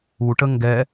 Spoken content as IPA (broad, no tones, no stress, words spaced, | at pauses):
uʈə ŋɡɛ